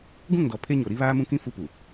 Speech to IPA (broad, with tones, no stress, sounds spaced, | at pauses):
ɡ ũ˦˨ ŋ d ɔ˨ pʰ e˦ ɲ o˨ ɾ i˦ β aː˦ m ũ˦ k ĩ˦ f u˦ p u˨